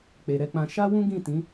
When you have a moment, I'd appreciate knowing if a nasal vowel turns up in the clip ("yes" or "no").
yes